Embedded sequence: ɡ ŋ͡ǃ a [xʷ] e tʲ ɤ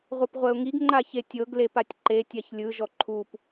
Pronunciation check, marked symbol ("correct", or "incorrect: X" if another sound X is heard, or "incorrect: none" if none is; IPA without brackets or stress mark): incorrect: ç